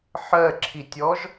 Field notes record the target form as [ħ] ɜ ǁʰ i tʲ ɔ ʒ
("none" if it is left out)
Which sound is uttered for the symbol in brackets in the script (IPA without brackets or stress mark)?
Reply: ħ